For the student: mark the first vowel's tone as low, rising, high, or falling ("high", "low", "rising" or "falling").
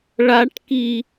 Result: high